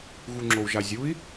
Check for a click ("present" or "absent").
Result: present